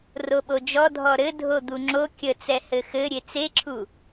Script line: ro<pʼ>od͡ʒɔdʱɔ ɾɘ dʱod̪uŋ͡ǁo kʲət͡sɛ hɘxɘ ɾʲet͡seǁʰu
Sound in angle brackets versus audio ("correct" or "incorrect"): incorrect